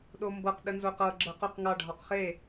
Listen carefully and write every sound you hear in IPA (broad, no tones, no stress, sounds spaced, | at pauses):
ɗ o m b ɤ q ɗ ə n z o q ɤ ɡ͡ǁ ɤ q ʊ q ŋ ɑ ɖʱ ɔ q χ e